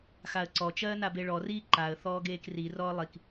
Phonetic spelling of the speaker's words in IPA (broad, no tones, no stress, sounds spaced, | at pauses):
x a ə̯ ǀ ɔ t͡ʃ ɜː n a b e ɭ ɔ r iː ǃ a ə̯ θ ɔː ɡ eː k r i r ɔː lˠ i k